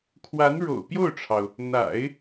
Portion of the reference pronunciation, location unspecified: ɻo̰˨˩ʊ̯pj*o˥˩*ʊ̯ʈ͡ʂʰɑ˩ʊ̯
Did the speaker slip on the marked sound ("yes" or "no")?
no